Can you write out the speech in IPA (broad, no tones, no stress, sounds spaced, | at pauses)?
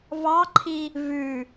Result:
v ɑ ǃʰ i | v ʉ